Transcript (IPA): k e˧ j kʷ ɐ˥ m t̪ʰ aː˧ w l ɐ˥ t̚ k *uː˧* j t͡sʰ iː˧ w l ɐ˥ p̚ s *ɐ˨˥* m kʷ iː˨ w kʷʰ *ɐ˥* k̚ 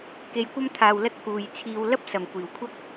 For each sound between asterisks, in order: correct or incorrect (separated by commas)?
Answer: correct, incorrect, correct